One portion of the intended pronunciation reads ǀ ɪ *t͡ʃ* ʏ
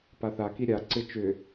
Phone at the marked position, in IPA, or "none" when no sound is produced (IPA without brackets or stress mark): t͡ʃ